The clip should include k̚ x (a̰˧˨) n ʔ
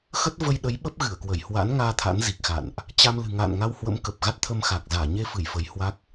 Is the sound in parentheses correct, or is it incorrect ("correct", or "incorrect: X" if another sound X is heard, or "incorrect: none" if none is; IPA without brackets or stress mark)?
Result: correct